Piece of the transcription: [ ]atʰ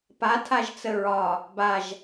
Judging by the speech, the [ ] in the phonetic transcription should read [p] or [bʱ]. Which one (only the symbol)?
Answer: p